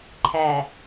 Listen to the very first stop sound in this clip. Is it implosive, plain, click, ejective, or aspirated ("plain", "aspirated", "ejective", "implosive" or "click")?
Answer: click